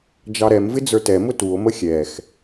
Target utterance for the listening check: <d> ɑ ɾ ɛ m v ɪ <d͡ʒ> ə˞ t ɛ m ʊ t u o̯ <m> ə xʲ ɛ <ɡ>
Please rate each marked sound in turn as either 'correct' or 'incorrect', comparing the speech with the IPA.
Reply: incorrect: d͡ʒ, incorrect: d͡z, correct, incorrect: x

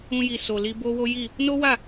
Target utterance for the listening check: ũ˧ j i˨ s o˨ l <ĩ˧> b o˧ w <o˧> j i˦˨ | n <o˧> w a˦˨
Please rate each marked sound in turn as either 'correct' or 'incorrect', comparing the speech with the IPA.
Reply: incorrect: i˧, incorrect: o˦, incorrect: o˦

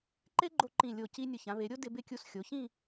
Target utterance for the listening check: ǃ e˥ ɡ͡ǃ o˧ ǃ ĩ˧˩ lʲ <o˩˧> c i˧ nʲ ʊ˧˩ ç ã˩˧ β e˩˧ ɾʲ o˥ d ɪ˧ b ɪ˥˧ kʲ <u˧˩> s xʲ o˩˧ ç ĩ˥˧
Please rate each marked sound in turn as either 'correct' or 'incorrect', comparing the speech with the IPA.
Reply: incorrect: o˧˩, incorrect: u˧

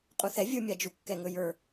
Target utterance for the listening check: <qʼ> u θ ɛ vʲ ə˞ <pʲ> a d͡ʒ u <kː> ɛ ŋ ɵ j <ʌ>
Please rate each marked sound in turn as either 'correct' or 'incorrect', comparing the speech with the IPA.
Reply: correct, incorrect: mʲ, correct, incorrect: ə˞

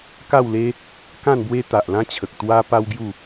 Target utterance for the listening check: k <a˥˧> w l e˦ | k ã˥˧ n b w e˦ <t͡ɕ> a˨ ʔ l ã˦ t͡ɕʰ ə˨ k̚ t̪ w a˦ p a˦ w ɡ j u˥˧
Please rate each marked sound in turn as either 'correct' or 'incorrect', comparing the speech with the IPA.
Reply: correct, incorrect: t̪

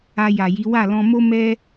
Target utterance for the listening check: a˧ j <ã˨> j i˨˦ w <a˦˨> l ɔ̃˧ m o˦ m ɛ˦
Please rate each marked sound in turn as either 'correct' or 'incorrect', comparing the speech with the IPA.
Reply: incorrect: a˨, correct

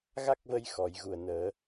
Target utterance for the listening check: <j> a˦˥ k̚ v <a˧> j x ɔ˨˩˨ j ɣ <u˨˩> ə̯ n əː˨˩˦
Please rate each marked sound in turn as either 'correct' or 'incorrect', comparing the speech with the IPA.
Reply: incorrect: ɣ, incorrect: ə˧, correct

